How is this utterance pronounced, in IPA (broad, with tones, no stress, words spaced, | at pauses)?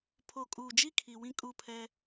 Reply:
pʰo˨kʼuː˨d͡ʒi˦ kʰi˨wĩ˦ kʼu˦˨pʰɛ˦